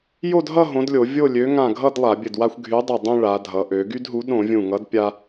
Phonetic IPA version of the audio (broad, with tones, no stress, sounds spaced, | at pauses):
j o˥˨ d ɦ ʌ˥˨ ɦ õ˨˥ d lʲ o˧˩˧ vʲ o˥˨ lʲ ø˨˥ ŋ ã˧˩ ɡʱ ʌ˥˨ d lˠ a˧˩˧ bʲ ɘ˧˩ d w a˦ xʷ ɡʱ y˨˥ dˤ y˧˩ dˤ õ˦ ɭ a˩˧ dʱ ʌ˩˧ ʔ ø˩˧ ɡ y˦ d ɦ u˨˥ d ɾ õ˧˩˧ vʲ ũ˧˩ ŋ ʌ˨˥ d pʲ a˦